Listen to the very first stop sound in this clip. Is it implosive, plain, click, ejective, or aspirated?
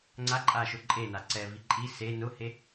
click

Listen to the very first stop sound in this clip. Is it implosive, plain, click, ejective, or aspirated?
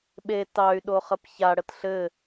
implosive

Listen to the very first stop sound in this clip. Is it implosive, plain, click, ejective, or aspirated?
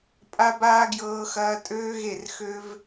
ejective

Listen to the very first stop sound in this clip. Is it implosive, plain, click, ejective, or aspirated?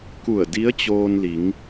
plain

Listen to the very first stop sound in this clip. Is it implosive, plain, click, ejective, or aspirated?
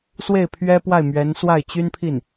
aspirated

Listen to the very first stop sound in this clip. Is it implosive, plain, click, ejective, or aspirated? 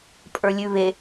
ejective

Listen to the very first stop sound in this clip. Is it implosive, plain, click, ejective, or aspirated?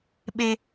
implosive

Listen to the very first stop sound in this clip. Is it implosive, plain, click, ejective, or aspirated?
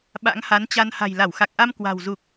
implosive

